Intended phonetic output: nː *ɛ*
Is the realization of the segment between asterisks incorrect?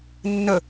yes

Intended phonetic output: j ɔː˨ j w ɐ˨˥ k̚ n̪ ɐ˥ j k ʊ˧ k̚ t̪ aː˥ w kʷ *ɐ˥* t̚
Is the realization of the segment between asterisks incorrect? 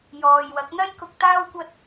no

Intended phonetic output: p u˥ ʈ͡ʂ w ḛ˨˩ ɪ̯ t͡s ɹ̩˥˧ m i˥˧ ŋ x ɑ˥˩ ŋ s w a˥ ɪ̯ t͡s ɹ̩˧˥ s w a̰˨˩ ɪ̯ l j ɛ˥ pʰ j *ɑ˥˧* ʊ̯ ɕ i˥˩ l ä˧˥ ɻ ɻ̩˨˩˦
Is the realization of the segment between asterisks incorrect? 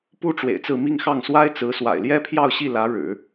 no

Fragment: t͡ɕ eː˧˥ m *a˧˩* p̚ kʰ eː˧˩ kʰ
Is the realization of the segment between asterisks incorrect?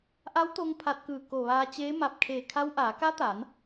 no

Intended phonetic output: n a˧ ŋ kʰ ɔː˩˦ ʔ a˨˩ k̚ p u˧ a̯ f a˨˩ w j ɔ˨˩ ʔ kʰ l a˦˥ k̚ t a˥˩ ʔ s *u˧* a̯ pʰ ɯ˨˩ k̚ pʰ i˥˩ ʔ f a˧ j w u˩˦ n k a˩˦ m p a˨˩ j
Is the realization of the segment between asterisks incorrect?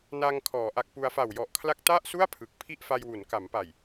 yes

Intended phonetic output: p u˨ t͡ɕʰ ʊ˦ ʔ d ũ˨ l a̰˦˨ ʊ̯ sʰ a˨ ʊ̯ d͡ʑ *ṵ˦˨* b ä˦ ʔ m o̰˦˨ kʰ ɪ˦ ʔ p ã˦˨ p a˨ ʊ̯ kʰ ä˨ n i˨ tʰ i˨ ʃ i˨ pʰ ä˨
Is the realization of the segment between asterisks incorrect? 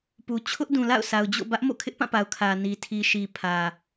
yes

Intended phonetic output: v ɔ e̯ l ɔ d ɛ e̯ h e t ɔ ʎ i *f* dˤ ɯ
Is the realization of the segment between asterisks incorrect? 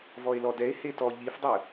no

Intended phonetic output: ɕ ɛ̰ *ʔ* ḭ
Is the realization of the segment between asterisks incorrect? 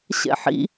yes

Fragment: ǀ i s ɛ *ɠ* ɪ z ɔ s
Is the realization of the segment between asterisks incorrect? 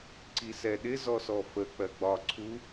yes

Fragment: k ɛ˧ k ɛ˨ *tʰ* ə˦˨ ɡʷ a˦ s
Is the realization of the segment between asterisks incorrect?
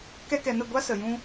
yes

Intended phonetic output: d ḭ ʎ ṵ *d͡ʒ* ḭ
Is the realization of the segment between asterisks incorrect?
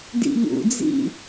yes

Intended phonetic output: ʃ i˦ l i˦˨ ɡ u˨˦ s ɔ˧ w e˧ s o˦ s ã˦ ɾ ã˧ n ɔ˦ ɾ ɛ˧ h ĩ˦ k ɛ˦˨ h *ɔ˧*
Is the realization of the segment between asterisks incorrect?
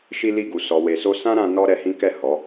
yes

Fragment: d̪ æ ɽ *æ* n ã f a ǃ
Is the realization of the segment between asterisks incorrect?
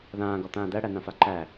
no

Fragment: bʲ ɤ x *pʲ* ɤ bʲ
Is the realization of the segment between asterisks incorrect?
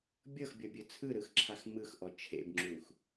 yes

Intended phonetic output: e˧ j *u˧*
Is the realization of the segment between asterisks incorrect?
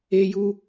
no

